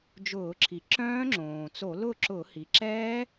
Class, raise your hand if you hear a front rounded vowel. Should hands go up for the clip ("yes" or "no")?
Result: yes